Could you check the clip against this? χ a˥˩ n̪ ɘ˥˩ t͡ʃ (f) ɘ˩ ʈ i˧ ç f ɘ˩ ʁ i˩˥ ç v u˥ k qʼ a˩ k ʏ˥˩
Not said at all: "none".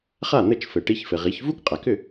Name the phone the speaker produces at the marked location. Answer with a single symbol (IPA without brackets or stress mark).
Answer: f